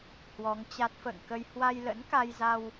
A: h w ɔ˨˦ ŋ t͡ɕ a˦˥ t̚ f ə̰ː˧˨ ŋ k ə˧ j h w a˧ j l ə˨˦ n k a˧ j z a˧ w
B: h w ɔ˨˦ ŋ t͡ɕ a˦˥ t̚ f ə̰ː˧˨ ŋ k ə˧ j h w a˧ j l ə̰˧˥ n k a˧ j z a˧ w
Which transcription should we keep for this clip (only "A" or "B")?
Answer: B